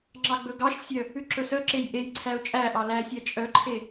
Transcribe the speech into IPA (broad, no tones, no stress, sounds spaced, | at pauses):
ŋ͡ǁ ɑ ɡ͡b ɵ ɡ ɑ ʃ sʲ œ | ʉ ǁ ɵ s œ ǁ e j ʔ e j ǀʰ æ ʊ̯ t͡ʃʼ æ ʔ ɑ l æ sʲ æ t͡ʃʼ œ ǃʰ e